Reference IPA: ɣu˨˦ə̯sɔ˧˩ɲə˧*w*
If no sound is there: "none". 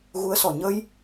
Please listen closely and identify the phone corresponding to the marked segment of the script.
j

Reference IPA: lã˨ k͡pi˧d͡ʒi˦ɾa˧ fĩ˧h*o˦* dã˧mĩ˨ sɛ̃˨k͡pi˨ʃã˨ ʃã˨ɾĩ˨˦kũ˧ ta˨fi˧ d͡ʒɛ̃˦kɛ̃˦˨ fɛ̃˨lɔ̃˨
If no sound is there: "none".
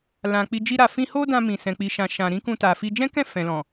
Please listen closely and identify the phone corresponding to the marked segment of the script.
o˦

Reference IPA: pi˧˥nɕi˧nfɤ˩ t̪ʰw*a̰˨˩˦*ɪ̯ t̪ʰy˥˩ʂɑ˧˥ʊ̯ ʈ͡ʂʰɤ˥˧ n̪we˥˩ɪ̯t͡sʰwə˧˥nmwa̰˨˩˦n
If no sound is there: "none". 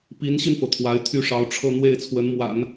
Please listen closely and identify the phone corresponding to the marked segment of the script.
a˧˥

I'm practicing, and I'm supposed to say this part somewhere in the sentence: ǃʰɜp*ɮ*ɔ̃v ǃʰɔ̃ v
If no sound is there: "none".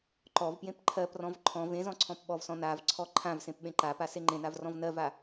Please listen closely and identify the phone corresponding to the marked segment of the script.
r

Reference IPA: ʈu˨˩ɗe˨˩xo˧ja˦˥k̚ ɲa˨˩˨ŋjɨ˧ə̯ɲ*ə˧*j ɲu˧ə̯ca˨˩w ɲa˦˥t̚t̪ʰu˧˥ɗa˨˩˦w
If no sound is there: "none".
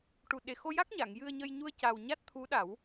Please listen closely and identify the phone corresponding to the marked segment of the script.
ə˧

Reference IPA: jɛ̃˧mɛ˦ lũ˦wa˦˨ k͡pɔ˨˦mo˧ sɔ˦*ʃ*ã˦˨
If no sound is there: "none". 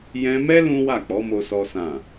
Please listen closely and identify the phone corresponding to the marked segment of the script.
s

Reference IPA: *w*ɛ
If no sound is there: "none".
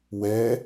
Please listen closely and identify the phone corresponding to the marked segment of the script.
w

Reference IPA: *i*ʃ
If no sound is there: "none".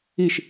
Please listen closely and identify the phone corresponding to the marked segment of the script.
i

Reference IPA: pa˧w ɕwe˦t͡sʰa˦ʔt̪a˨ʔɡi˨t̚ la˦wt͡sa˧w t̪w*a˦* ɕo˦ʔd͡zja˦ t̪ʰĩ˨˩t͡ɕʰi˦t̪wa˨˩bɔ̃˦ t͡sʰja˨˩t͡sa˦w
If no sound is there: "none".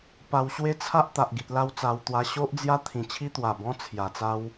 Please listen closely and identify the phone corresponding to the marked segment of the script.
a˧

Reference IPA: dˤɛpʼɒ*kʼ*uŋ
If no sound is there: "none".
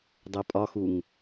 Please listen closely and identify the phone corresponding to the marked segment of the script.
x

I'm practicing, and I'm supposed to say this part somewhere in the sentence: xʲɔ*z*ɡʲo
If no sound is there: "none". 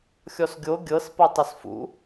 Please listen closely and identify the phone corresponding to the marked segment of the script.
s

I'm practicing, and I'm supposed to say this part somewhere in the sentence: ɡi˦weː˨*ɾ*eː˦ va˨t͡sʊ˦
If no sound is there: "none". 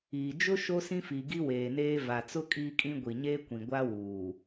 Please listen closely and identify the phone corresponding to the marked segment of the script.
n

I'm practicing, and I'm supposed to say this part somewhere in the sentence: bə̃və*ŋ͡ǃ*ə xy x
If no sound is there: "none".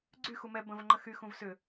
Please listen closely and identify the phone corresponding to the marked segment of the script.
ŋ͡ǃ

